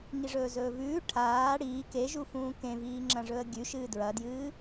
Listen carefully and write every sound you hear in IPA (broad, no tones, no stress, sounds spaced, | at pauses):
ŋ i ʐ ɵː z ɵː v ʉː ʈʰ aː ɽ iː k e ʒ u f ũː k ẽ v iː ŋ͡ǁ ɐ̃ ʐ ɵ ə̯ ɡʲ ʉ ʃ ɨː d ɹ ɐ d j ɨː